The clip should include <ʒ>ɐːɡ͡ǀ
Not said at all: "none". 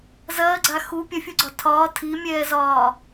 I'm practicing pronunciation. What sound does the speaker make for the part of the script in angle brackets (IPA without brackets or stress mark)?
z